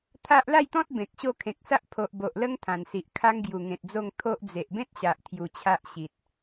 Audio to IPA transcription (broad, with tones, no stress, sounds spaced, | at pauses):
t̪ʰ a˦ ʔ l a˥˧ j t̪ ɔ̃˦ t̚ b ẽ˨ k̚ ɕ o˥˧ kʰ ẽ˨ k̚ s a˦ ʔ pʰ o˨ ʔ b o˨ ʔ l ə˦ ŋ t̪ʰ ã˨˩ n s i˨ ʔ kʰ a˦ ŋ ɡ j u˨˩ ŋ ẽ˨ t̚ d͡z o˥˧ ŋ t̪ʰ o˦ ʔ d͡z e˨ ʔ b ẽ˦ t̚ ɕ a˨ ʔ t̪ʰ j u˧ t͡ɕʰ a˦ ʔ ɕ i˨ t̚